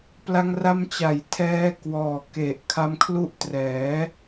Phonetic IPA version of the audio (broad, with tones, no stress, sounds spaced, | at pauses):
p l a˧ ŋ r a˧ m t͡ɕ a˩˦ j tʰ ɛː˦˥ k w ɔː˨˩ k e˨˩ ʔ kʰ a˦˥ m kʰ l u˦˥ ʔ t r ɛː˩˦